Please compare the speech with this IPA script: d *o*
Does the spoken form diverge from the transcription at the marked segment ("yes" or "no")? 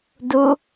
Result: yes